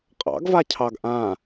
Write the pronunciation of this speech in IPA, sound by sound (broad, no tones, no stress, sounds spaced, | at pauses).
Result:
qʼ ɑ̰ ɡ v a cʰ ɑ ɡ ʔ ã